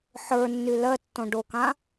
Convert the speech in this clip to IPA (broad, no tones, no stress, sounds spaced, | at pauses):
ħ ə˞ nː y l ɜ tː õ ɖ o k ã